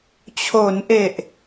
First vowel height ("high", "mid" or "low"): mid